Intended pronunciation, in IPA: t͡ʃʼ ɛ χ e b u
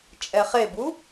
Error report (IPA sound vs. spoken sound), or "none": none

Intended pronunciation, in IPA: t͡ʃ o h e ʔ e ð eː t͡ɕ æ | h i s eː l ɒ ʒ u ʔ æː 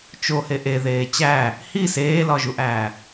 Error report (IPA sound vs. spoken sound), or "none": none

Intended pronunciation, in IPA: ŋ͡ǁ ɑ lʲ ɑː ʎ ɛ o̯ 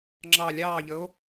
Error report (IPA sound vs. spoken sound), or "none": ɛ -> ə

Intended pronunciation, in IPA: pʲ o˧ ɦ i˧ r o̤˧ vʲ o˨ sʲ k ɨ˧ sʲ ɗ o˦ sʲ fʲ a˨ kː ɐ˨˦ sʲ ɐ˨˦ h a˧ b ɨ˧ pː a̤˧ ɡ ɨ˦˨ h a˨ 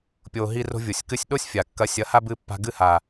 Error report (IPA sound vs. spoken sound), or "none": none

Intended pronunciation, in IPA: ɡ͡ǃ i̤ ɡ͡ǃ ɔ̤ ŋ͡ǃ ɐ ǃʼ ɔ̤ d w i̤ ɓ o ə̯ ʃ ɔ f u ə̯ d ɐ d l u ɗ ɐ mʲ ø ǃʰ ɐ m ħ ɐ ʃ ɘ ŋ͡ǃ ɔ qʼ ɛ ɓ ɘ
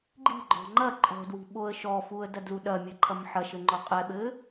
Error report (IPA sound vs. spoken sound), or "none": ø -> ɘ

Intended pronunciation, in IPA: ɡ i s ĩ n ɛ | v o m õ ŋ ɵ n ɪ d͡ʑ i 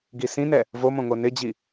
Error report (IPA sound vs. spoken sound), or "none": ɵ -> o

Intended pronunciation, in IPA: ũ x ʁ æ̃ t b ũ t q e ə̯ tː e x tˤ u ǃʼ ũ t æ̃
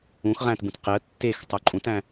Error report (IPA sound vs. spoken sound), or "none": none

